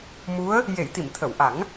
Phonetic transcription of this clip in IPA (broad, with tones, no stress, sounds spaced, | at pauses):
m u˧˥ ə̯ | j e˨˩˨ j t̪ i˨˩˨ m t̪ʰ ə˨˩˨ w ʔ a˨˩˦ ŋ